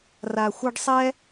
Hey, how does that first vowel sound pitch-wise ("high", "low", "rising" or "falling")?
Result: low